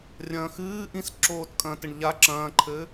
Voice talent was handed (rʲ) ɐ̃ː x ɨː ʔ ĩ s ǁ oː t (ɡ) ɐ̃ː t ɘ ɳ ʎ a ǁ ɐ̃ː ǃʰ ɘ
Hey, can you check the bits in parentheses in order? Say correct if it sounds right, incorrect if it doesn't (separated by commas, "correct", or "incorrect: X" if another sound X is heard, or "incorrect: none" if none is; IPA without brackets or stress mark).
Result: correct, incorrect: kʼ